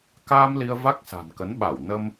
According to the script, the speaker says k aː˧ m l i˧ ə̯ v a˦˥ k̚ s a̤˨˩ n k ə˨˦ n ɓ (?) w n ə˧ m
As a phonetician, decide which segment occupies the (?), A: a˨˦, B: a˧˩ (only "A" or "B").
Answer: B